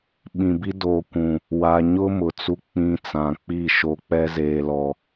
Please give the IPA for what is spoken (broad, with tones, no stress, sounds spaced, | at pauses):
ɓ ĩ˨ b i˦ d oː˨ kʷ ũ˨ | w a˨ ɲ ʊ˦ m ʊ˨ t͡s u˦ k͡p ĩ˦ t͡s ã˨ k͡p i˦˨ ʃ o˨ k͡p ɛ˦ z eː˨ l ɔ˨